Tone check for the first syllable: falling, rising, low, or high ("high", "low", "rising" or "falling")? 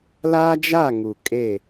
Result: high